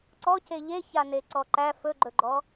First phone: ǀ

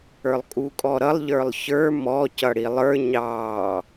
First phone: ə˞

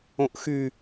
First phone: õ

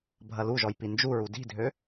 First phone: bʱ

